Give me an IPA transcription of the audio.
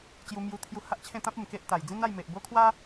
t͡ɕju˧mju˧ t̪ʰju˧ha˦ʔt͡ɕʰẽ˥˧ t̪ã˦p̚ u˨˩mke˦ʔ t̪a˨˩j d͡zĩ˦na˥˧jme˨ʔbo˦ kʰwa˦

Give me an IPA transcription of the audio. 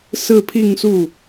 sɹ̩˥˧pʰi˥˧ŋsu˥˩

